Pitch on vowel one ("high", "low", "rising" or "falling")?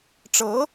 rising